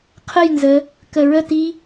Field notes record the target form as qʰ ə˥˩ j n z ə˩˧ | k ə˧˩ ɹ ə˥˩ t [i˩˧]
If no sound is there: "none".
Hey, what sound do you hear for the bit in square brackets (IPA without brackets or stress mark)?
i˧˥